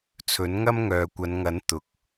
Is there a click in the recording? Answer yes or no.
no